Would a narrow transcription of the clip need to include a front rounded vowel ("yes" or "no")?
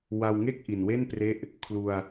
no